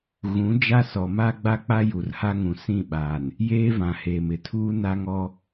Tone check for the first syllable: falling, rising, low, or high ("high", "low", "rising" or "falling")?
rising